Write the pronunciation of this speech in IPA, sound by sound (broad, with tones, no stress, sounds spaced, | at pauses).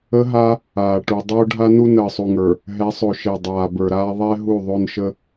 ə˦ ɦ a˦ | aː˨ ʈ u˨ dˤ oː˦ ɖʱ a˦ n u˦ n əː˨ sˤ u˨ ŋ ə˞˨ | ɦ ɛ˨˦ sˤ o˨ ʃ e˨ dˤ aː˨ b ə˞˨ ɾ aː˦ ðˤ ɛ˦ ɦ u˦˨ ðˤ o˦ n ʃ ə˦